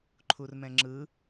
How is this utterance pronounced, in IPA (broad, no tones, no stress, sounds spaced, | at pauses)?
ǃʰ u r m ɛ̃ ŋ͡ǁ ɯ